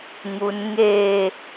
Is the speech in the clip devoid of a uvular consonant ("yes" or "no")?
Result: yes